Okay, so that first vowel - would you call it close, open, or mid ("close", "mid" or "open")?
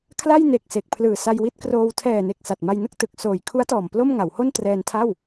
open